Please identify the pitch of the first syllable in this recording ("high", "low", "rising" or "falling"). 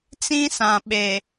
high